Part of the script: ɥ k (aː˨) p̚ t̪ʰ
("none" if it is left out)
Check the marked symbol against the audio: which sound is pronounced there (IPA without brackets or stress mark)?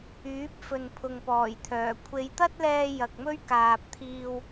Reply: aː˨